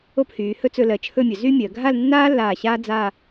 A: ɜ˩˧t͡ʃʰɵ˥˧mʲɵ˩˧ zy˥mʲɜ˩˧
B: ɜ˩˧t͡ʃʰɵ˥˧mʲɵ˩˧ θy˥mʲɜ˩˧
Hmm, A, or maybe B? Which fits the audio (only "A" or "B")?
A